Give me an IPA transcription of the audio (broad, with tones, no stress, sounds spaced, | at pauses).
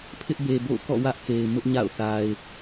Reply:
pʰ ɪ˦ ʔ b e˨ b o̰˦˨ ʊ̯ k ɔ̰˦˨ w ä˦ ʔ k e˨ ɪ̯ m ʊ˦ ʔ ɲ a̰˦˨ ʊ̯ θ a˨ ɪ̯